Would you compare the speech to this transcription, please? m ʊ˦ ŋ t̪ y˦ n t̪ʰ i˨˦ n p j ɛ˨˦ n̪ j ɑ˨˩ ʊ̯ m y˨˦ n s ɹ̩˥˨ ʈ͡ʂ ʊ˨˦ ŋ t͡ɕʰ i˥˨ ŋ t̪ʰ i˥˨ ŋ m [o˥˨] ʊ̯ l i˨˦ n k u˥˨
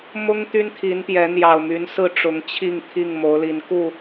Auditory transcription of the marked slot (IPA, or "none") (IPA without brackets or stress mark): o˨˦